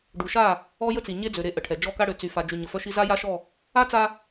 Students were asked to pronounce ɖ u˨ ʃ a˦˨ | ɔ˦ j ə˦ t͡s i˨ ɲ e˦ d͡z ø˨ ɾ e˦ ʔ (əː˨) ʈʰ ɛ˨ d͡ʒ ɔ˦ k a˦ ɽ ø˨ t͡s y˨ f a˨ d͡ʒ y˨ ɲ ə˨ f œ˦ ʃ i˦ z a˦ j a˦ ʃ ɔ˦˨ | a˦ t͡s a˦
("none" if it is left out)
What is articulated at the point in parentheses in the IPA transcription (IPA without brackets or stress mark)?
ə˨